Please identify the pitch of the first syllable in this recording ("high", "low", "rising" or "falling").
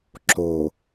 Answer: low